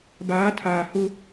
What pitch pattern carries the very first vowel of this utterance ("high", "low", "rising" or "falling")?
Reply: rising